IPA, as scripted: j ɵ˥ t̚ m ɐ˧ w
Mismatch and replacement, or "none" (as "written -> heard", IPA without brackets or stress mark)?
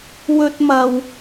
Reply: j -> w